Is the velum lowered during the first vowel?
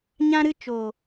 yes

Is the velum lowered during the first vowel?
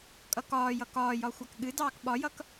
no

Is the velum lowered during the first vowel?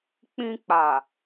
yes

